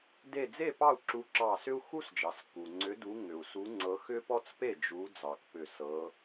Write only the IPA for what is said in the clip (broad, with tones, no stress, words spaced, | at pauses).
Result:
de˧˩d͡ze˥˨ pɑ˥˨u̯ǁu˨˦ǁɑ˧˩sʏ˥u̯ xu˥sd͡ʒɑ˩s ku˩ŋ͡ǀʏ˨˦du˨˦ ŋʏ˩u̯su˨˦ŋ͡ǀɤ˨˦ xʏ˥pɔ˥t͡spe˥˨ d͡ʒu˨˦ d͡zɑ˩k pʏ˧˩sɤ˨˦